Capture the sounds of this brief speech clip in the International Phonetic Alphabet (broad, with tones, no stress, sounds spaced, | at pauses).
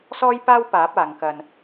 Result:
s ɔː˥ j p aː˥ w p aː˨˥ p̚ aː˨˧ ŋ k ɐ˧ n